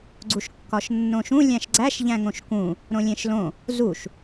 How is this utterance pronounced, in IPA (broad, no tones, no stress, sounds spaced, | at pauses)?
ɡ͡ǀ u ʃ kː ɒ ʃ nː õ ʃ ũ lʲ æ̃ ʃ ɡ͡ǀ æ ʃ ʎ æ̃ ŋ õ ʃ k ũ | ɾ õ lʲ ẽ ʃ l õ | z u ʃ